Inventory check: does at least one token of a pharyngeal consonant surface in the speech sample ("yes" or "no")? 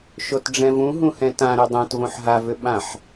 yes